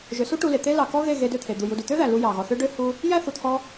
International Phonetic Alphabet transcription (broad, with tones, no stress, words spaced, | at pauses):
ʒø˨su˦ ʈu˧le˨t̪e˦ lɑ˨kɔ˦ɣe˦˨ ɣe˧dø˦˨t̪ʰe˨d̪u˨ ju˧du˨ t̪ø˦ðæ˨ lu˧ jɑ˨ɣɔ˨θø˦ ɖø˦hu˧ | jæ˦θu˨t̪ʰɔ˧